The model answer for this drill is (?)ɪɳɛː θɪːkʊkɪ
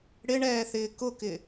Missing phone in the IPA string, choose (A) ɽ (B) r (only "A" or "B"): A